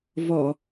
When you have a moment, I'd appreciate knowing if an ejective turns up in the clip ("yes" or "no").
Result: no